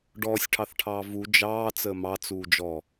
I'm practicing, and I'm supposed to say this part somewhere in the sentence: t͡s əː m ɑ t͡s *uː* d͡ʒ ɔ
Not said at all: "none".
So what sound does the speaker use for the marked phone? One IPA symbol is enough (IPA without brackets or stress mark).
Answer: uː